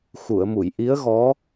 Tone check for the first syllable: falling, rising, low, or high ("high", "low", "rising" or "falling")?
low